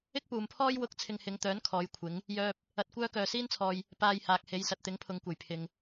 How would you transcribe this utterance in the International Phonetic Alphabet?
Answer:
ɪ˥k̚puː˨mpʰɔː˥j wʊ˧k̚ t͡sʰɪ˧ŋhɪ˨˧ŋt̪œː˨˥n kʰɔː˨˧j kʷʰɪ˨˥ŋ | jœː˥p̚ | ɐ˧t̚kʷœː˥ kœː˨siː˥nt͡sʰɔː˨j | paː˧jhaː˨k̚he˨˧jsɐ˨t̚ t̪ɪ˨˥ŋpʰʊ˨ŋkʷɐ˨˩j pʰɪ˨ŋ

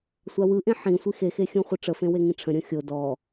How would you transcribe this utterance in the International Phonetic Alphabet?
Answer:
sʷawɯʔẽ ħĩ sʷixexexʲõ χʷɯʈ͡ʂəfẽ weŋĩʈ͡ʂʰə̃ ɾʲõxʲo dɔ

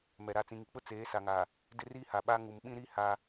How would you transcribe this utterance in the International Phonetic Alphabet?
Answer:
mɛ˨ɾa˦˨ t͡sĩ˨ŋi˨k͡pʊ˦ t͡seː˨˦sa˨ŋa˨ | dɪ˦riː˦ha˨ɓa˦ ŋu˨mɓĩ˦ɾi˦ ha˦

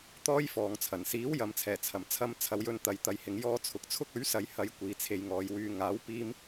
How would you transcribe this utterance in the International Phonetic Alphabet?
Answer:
t̪ɔː˥jfɔː˨ŋt͡sʰɐ˨˩n siː˨˥wjɐ˨mt͡sʰɛː˨˩ t͡sʰɐ˨˩mt͡sʰɐ˧mt͡sʰɐ˨˧wjɵ˧n t̪ɐ˨jt̪ɐ˨jhɪ˨ŋ jɔː˧ t͡sʰʊ˨k̚t͡sʰʊ˥k̚ ɵ˨˥ɥsɐ˨˧jhɐ˨˧j kʷiː˨˧t͡sʰe˧jŋɔː˨j wyː˨ ŋaː˨˥w piː˥m

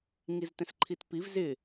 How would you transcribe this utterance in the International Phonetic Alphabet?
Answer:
ŋiztɛ̃sǃʰitpiv zɪ

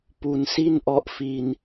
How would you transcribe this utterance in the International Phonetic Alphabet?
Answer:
pu˧nsi˥˩nʔɔ˦˥ʔfi˧n

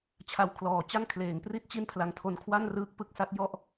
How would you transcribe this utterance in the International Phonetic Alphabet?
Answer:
t͡ɕʰa˧w kʰlɔː˨˩t͡ɕa˥˩ŋ kʰleː˨˩ŋpri˦˥t̚ t͡ɕi˥˩npʰla˧ŋtʰo˧n kʰwa˥˩nrɯː˦˥k̚pɯ˥˩k̚sa˦˥t̚ jɔ˥˩ʔ

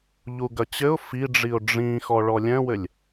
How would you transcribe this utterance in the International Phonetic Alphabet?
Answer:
ʎuɡɐt͡ɕɘʊ̯ fiɖ͡ʐiʊ̯ ɖ͡ʐĩxɔ ɭɔlʲɛ̃wɘlʲ

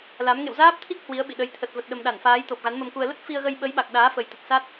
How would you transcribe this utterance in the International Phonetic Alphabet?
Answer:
la˨˦m ŋḛ˧˨wzaː˦˥p̚t̪ʰi˦˥k̚ hwi˨˦ə̯ɓḭ˧˨ɗə˨˦j t̪ʰə˨˩t̚ və˨˩t̚ɗə˨˩m ɗa˧˩nfaː˨˦jt̪o˨˩p̚ ɣa˨˦nmə˧mku˧ə̯ lə˦˥t̚ fi˧ə̯ɣə˧jɓə˨˦jɓa˨˩k̚ ɗaː˨˦fə˨˩jt̪ə˨˩t̚ sa˦˥t̚

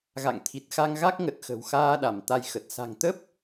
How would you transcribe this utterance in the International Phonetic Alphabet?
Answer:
ɣa̰˧˨ŋt̪ʰi˨˩t̚xa˧ŋɣa˦˥k̚ ŋə˨˩t̚xə̤˨˩wxaː˧ɗa˧˩m t̪a˧jxə˨˩t̚ sa̤˨˩ŋt̪ə˦˥p̚

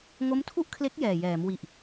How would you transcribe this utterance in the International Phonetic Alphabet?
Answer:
ŋo˦˥mtʰu˥˩ʔkʰle˦˥k̚ jɛː˨˩jɛː˩˦m wi˨˩ʔ

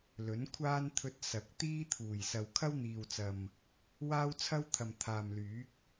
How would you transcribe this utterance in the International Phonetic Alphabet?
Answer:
lɵ˨˥nkʷʰaː˥n t̪ʰɵ˧t̚ sɐ˨˥k̚ t̪iː˥t̪ʰuː˨˩jsɐ˨w kʰɐ˥wn̪iː˨wt͡sɐ˨m | waː˥wt͡sʰɐ˥wt̪ʰɐ˨m t̪ʰaː˨mlyː˨˥k̚

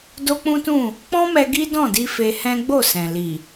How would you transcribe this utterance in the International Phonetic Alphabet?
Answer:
do˦k͡pũ˦tũ˦˨ | k͡pɔ̃˦ mɛ˧ɡi˦ dɔ̃˦˨di˧ fe˧hɛ̃˦ ɡ͡bo˦˨sɛ̃˨ li˨

